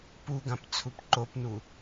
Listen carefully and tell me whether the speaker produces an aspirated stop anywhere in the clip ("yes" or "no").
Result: yes